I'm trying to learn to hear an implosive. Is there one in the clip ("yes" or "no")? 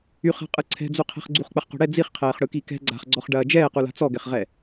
no